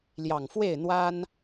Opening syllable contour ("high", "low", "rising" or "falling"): low